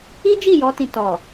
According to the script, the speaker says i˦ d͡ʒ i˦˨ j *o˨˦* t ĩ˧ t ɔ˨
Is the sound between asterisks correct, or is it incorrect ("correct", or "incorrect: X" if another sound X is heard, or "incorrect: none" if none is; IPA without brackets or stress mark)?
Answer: incorrect: ɔ˨˦